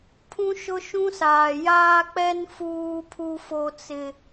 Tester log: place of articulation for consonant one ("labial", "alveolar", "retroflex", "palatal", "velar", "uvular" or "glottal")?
labial